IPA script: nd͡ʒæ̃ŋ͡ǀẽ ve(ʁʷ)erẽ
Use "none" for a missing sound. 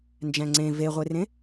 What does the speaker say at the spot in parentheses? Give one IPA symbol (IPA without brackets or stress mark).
ʁʷ